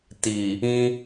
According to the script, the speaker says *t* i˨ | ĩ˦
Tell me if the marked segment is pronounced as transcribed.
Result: yes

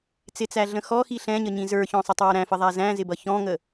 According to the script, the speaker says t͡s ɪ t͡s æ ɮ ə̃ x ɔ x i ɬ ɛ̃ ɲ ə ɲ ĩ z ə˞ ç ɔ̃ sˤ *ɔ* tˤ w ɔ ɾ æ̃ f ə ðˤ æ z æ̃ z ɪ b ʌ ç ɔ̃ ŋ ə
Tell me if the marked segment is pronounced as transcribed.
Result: no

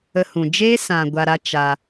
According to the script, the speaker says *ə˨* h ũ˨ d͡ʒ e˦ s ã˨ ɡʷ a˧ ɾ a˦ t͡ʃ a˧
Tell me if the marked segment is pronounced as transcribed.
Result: no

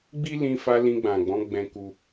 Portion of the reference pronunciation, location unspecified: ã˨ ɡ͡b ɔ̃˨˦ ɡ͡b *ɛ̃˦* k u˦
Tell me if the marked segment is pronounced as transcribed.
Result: yes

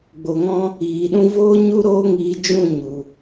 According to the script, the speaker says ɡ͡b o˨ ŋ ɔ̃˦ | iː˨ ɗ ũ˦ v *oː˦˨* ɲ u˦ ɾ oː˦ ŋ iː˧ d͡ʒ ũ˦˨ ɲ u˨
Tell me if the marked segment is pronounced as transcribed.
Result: no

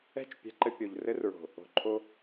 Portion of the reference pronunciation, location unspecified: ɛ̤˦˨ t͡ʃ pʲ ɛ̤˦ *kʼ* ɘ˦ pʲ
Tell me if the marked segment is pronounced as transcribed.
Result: no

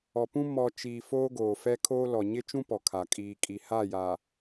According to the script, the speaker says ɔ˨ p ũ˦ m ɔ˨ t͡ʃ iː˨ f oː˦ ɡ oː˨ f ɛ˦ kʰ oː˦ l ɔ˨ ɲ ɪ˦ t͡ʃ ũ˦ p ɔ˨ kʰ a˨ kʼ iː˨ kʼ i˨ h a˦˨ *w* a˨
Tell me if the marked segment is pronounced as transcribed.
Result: no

